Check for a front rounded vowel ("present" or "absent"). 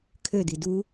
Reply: present